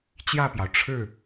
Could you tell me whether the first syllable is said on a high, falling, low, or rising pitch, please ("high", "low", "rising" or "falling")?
falling